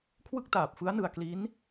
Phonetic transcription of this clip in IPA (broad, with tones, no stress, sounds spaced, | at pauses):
kʰ w ɯ˥˩ k̚ t aː˨˩ p̚ f ɯ˦˥ a̯ n ɯ˨˩ a̯ k l i˦˥ n